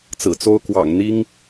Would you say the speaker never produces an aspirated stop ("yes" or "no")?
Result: yes